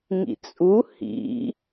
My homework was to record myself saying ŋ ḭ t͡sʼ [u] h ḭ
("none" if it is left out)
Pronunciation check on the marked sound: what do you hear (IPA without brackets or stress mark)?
u